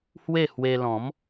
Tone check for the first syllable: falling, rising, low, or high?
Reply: falling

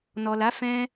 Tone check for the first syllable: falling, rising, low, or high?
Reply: low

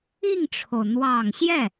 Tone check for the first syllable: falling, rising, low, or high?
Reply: falling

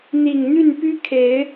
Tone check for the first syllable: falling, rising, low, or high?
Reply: low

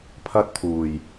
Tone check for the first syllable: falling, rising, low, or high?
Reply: high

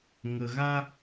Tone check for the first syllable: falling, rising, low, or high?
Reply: low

